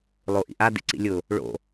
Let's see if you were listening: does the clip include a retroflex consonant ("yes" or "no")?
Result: yes